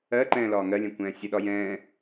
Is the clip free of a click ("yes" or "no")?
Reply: no